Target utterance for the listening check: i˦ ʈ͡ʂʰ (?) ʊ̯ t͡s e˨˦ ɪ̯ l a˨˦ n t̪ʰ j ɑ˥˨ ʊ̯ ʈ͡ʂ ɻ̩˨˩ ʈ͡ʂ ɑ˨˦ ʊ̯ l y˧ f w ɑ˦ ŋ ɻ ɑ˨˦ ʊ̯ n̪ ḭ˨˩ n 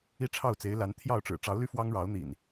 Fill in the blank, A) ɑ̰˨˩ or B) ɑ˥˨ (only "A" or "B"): B